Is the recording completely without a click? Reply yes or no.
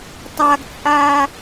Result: yes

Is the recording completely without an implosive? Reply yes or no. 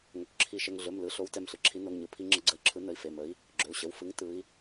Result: yes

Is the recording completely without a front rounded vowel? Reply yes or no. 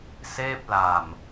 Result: yes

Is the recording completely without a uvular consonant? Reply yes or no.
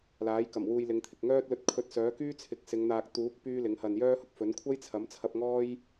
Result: yes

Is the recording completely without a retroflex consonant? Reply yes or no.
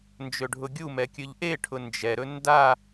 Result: no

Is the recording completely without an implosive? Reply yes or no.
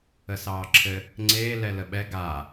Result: no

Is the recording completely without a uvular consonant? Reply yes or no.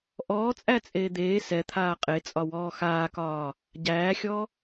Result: no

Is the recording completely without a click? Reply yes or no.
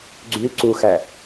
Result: no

